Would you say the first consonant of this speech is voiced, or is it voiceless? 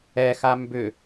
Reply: voiceless